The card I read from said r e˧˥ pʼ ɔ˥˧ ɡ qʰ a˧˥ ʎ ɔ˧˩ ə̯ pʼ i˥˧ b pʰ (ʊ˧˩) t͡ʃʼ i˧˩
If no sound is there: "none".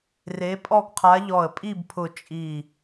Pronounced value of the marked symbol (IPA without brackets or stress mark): ʊ˧˩